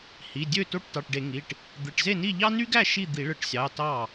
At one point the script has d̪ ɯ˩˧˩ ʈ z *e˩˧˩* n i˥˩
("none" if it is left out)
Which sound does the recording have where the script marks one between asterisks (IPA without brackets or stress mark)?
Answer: e˥˩